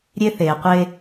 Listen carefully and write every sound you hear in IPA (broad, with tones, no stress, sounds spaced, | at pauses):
ɾʲ e˦ θ eː˨ qʷ e˦